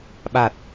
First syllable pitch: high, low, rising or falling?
low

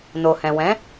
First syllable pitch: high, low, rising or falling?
low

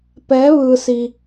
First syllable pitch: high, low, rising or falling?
rising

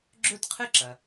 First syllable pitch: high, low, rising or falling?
falling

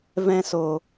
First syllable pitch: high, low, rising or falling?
high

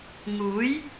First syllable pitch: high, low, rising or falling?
rising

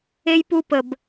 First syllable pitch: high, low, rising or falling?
high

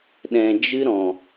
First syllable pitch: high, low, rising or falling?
low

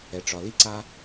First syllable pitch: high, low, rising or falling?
low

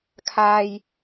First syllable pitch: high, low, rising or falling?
low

